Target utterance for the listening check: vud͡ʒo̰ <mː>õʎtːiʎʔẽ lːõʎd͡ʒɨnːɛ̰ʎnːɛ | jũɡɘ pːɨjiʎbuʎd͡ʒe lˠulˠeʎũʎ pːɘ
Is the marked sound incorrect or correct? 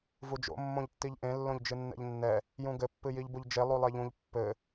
correct